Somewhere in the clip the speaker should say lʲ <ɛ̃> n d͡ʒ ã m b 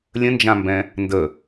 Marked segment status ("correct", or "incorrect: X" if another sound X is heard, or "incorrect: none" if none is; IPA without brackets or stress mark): incorrect: ə̃